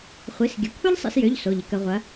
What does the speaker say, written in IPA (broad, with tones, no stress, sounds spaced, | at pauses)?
χʷ i˩˧˩ s ɡʲ ə˩˧˩ kʷʰ ɐ˥ ʎ sˤ ḭ˧ s j ø˩˧˩ ʎ s o˩˧˩ ʎ ɪ˩˧ k ə˩˧ ʁʷ ɐ˩˧